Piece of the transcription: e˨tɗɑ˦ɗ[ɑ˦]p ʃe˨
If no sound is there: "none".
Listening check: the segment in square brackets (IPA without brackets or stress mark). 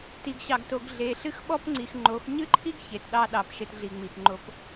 ɑ˨